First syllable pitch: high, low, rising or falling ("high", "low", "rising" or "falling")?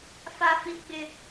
high